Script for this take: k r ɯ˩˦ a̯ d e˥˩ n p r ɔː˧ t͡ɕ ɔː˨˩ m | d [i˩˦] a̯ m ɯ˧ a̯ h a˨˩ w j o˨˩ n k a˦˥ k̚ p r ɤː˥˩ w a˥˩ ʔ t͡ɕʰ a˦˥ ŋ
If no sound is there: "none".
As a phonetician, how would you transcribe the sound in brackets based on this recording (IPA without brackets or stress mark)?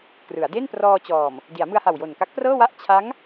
i˩˦